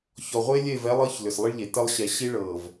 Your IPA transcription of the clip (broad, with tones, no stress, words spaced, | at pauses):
çɔ˨ʁʷe˦ lʲe˦˨vɛ˦lˠɤ˦ç lʏ˨slˠə˦ɭ ʎe˨tə˦lˠ ɕɛ˨ɕi˦ɭɤː˨v